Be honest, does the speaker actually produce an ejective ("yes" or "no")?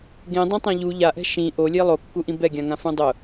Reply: no